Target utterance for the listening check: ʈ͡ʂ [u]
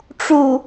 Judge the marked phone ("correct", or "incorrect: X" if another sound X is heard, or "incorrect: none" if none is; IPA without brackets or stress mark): correct